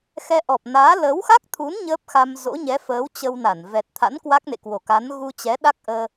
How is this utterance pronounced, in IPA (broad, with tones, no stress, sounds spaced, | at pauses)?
x ɛ˧ ʔ ɔ˨˩ p̚ n aː˨˦ l əː˨˦ w x a˦˥ k̚ t̪ʰ u˨˦ n ɲ əː˦˥ p̚ x a˧ m z o̰˧˥ ɲ ɛ˨˦ f əː˨˦ w t͡ɕ ə˧ w n a˧˩ n v ɛ˨˩ t̚ t̪ʰ a̰˧˥ n k w a˦˥ k̚ n ḛ˧˨ k w o˧˩ k a˨˦ n ɣ u˧ t͡ɕ ɛ˨˦ ɗ a˦˥ k̚ ʔ əː˧